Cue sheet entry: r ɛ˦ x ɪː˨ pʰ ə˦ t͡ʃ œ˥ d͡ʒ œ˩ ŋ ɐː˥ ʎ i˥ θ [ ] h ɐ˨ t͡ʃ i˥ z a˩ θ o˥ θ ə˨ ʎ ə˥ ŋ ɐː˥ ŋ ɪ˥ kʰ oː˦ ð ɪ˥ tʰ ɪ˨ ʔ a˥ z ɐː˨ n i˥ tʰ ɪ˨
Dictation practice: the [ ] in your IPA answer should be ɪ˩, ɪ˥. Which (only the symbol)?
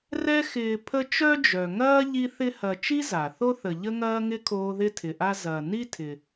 ɪ˥